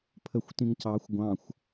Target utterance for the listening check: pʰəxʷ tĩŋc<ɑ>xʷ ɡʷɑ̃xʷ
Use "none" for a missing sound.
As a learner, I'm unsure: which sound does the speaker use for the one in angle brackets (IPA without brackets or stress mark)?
ɑ